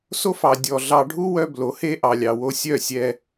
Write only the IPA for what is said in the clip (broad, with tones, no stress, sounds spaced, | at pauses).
s o˦ f ɑ˨ dʲ ɔ˨ ɮ ɑ˧ ɖʱ u˦ w œ˦ b l o˨˦ h e˦ ʔ ɑ˨ lʲ ɑ˨ w o˧ sʲ œ˦˨ sʲ ɛ˧